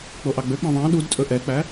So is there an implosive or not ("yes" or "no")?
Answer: yes